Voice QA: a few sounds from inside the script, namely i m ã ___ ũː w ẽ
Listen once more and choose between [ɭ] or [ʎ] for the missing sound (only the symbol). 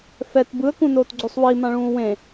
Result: ɭ